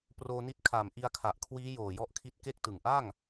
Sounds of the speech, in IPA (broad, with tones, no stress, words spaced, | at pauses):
proː˧ni˦˥t̚ kʰa˨˩m ʔi˧a̯kʰa˨˩ʔkʰwiː˦˥ joː˨˩jɔ˥˩ʔkʰi˦˥t̚ ke˥˩k̚tɯ˨˩ŋ ʔa˥˩ŋ